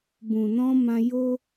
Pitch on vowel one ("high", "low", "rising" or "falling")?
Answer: low